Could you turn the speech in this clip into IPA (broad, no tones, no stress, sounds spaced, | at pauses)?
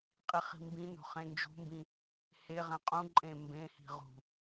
qʼ i χ i̤ m b ĩ n o̤ χ ẽ n d͡ʒ ṳ m b ĩ | h e ʁ æ̃ qʼ ũ ǃʼ ẽ m b ẽ h i̤ ʁ ṳ